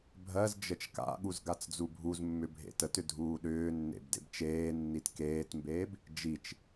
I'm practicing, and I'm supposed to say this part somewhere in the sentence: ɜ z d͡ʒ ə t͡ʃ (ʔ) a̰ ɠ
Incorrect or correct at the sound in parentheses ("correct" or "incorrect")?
incorrect